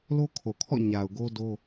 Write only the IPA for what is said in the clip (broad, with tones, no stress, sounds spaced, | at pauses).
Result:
l o˦ kʰ o˨ kʰ ɔ̰˦˨ ɲ a˨ ʊ̯ ɡ o˦ d o˦